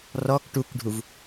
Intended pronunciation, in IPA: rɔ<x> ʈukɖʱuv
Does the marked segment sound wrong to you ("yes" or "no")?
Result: yes